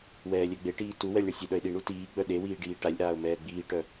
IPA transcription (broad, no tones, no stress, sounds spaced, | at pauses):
w ɛː lʲ œ ɡ͡b e ʈ iː t u w ɛ lʲ ɳ ɛ sʲ e ɗ œ ɪ̯ ɗ i ɳ u t iː ɡ͡b œ ɗ e w iː ɖ iː ʈ a lʲ ʔ aː ʊ̯ m ɛː ɡ͡b iː ʈ œ